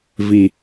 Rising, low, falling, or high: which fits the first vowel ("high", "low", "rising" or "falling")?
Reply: low